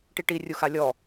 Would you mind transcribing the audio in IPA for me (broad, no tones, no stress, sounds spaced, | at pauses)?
ʈ i ʈ i rʲ u x a lʲ ɔ